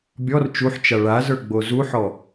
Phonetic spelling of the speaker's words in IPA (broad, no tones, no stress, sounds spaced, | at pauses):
bʲ ɔ r t͡ʃ u ħ t͡ʃ a ɭ a z ə˞ ɡ͡b o z u ħ ɔ